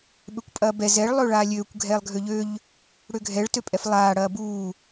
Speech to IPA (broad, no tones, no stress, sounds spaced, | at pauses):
ɓ ø kʷ pʼ ɐː b ɛ z ɛ ɭ lˠ ø ɭ aː lʲ øː kʷ ɡʱ ɛː lˠ ɡʱ ø ʎ ø ʎ | ɽ ø ɡʱ ɛ ɭ t ø pʼ ɛ f lˠ aː ɽ ɐː b uː